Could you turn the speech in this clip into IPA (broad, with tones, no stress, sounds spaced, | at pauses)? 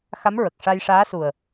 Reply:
x a˧˥ m ɹ ə˨˩ k̚ ʂ a˧ j ʂ aː˧˥ s u˨˩ ə̯